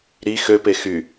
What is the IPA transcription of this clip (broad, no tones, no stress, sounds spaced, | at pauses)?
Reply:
ɾ i x ø p e x y